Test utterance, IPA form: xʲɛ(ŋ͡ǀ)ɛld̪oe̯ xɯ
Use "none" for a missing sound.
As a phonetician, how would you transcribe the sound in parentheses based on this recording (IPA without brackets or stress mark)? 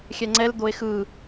ŋ͡ǀ